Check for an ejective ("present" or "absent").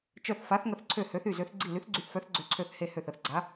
absent